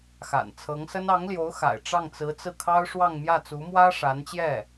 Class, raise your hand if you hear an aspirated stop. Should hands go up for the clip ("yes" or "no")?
yes